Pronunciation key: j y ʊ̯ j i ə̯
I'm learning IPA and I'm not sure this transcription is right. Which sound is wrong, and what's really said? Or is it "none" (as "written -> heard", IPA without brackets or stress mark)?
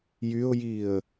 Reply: none